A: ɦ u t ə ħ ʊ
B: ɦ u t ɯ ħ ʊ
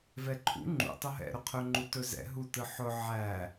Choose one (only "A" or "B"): B